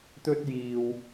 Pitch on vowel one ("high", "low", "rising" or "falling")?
high